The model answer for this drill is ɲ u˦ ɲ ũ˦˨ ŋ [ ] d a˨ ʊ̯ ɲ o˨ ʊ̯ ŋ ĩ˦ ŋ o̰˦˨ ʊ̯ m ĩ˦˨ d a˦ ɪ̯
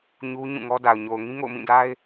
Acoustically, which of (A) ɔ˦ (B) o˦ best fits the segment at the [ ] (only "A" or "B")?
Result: A